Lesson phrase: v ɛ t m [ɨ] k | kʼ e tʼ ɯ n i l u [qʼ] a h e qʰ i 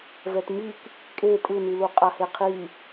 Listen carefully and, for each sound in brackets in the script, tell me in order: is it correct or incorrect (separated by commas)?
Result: incorrect, correct